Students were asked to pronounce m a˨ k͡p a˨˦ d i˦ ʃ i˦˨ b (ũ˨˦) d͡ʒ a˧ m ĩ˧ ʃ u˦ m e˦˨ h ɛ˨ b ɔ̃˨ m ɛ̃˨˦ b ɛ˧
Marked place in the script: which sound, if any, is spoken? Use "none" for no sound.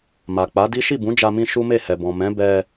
ũ˨˦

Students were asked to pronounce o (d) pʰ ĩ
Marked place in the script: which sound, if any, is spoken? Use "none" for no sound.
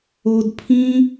d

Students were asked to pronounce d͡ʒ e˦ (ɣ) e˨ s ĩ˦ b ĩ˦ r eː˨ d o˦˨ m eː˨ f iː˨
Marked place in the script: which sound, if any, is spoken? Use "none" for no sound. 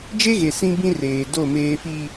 ɣ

